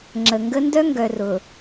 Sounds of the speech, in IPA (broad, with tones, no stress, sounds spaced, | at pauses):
ŋ͡ǁ ə˨ ŋ ɡ ə˦ n d œ˦ ŋ ɡ œ˨ r ʊ˨